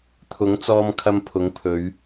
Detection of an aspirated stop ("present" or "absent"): present